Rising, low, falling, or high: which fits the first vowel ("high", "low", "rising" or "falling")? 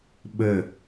falling